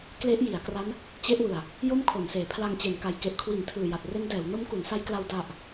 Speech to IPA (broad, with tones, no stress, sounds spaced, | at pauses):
k l e˦˥ ʔ j i˩˦ a̯ k r a˦˥ n | t͡ɕ e˦˥ ʔ w ɯ˨˩ a̯ | j o˥˩ m kʰ o˩˦ n s eː˨˩ pʰ l a˧ ŋ t͡ɕ e˩˦ n k a˨˩ j k e˨˩ ʔ kʰ w i˩˦ n tʰ ɯː˨˩ j a˨˩ t̚ r e˦˥ n d ɛː˩˦ w n o˦˥ m k u˩˦ n s a˦˥ j k l a˧ w d a˨˩ ʔ